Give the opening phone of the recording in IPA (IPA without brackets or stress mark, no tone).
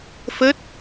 f